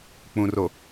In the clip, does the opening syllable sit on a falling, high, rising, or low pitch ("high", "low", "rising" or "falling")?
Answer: low